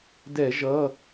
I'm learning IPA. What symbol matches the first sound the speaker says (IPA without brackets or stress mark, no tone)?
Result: d